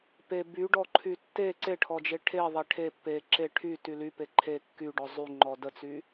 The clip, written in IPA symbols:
pe byɖɔǃʰy tːe ǀeʈʰɔd͡ʒe ʈʰeðˤe ʈʰe pːe ǁe ʈʰyty lype ǃʰe kːyɖɔ zˤyŋ͡ǃɔ dət͡sy

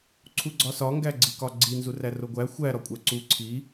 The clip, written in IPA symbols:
ǀʰuɡ͡ǀɒsɒ ŋɡæɡ͡ǀikɒɡ͡ǀi nzuræroɡʷæ xʷæ ɾɒkʷʼæǀu ǀʰi

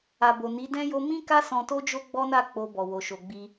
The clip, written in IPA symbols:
a˨bo˨ni˨˦ dɛ̃˦ jo˧mĩ˦ka˦ sɔ̃˧to˦d͡ʒo˦ ɡ͡bɔ˦na˦˨ k͡po˧bɔ˨ wo˨ ʃo˨ɡ͡bi˧

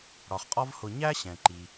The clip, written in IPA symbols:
ɽɒ˩χqʼɒ˦vhʊ˨ ɲæ˥ɕɛ̃˩ ǃi˩

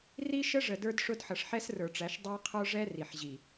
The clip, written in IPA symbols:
ri˦ ʃə˦ʐə˨ də˞˦dʂʊ˦d ħʌ˨ʂħɛ˦srə˞˨ʈ͡ʂæ˨˦ʃ dˤæ˦qʰə˞˦ʐɛ˦ ri˨ħʑi˨

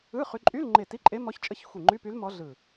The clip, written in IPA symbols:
ɯ˧˥˧ χy˧˥ ǃʼy˧˥˧lŋ͡ǃe˧˩ ti˧˥˧ǃʼe˧˥mɔ˧˥çt͡ʃʼə˧˥˧ç xʷi˧˩ŋ͡ǃy˧˥˧py˧˥l mɔ˧˥ɮɯ˧˩

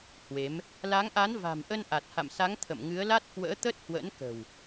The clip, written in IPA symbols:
hwe˨˦m | la˨˦ŋʔa˨˦nva̤˨˩mʔə˧n ʔa˨˩t̚ha̰˧˨msa˨˦ŋ t̪ʰə̰˧˨mŋɨ˨˦ə̯la˦˥t̚ kwə̰ː˧˥t̪ə˦˥t̚hwə̰˧˥nkə̤˨˩w

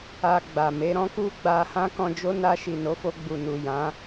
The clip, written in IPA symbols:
a˧ ɡ͡ba˨me˨˦ɾɔ̃˦ ku˦ɡ͡ba˧hã˦ kɔ̃˧d͡ʒo˦ na˧ʃi˨no˨˦fo˧ ɡ͡bu˨nu˨ jã˨˦

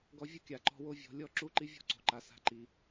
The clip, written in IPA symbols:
ɡɔ˧ vʲʊ˦kʲa˨ǃɔ̤˧ wo˦vʲɔ̤˨˦lʲɔ˦ ǁu˦ǃi˦vʲɔ̤˦ǀo̤˨ ǃa˧sa̤˦ǃi˧

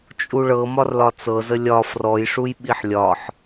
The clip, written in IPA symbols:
t͡ʃʼuɭɤ mɒrlɒt͡sɤzə lʲɒ frɔjʂuj ɓiħlʲɒħ

